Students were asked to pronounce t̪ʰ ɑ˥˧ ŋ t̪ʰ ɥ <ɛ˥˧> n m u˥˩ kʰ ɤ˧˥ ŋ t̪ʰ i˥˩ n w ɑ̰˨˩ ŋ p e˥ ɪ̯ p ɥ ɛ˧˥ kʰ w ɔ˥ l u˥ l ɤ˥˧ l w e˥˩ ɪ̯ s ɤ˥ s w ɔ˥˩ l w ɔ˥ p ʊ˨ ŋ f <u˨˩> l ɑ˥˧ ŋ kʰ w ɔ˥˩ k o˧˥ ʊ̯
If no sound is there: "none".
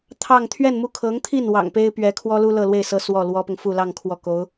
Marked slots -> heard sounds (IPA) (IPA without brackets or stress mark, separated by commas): ɛ˥˧, u˥˧